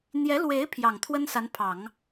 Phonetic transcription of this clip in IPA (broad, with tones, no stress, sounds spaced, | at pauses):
n̪ j ɛ˧˥ l w e˧˥ ɪ̯ pʰ j ɑ˨˩ ŋ t̪ʰ w ə˥ n s a˧˥ n pʰ ɑ˨˩˦ ŋ